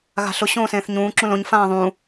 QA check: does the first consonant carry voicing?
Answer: yes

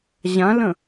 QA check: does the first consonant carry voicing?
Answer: yes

